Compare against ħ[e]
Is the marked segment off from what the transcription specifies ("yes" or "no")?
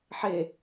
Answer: no